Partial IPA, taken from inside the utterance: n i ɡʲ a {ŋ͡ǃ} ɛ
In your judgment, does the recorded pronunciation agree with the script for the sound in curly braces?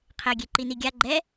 no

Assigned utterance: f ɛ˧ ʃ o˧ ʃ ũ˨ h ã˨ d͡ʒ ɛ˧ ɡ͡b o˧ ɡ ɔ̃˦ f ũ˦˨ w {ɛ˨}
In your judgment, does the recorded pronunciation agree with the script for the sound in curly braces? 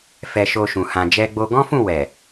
yes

